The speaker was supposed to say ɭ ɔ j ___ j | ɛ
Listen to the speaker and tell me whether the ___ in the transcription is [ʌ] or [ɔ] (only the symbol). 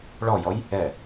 ɔ